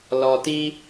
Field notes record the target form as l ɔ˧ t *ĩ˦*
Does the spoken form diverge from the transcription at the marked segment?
yes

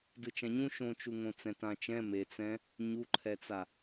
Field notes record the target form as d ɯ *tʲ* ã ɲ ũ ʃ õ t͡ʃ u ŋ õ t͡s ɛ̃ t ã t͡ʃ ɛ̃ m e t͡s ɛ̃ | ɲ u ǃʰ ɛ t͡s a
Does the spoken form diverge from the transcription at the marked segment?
yes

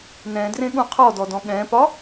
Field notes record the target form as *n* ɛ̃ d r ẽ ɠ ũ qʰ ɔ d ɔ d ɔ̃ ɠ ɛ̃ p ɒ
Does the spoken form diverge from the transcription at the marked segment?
no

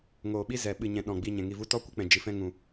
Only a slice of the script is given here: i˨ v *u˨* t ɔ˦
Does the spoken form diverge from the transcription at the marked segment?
yes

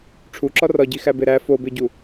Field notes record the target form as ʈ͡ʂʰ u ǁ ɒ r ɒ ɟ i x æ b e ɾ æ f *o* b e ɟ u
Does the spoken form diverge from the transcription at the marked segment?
no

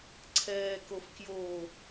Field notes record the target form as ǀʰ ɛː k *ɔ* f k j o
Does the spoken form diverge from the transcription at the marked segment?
yes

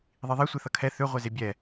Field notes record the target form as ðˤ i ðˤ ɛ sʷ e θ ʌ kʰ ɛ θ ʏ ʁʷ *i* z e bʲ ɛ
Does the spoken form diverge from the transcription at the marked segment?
yes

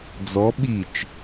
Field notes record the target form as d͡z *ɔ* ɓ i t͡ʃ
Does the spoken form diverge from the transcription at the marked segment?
no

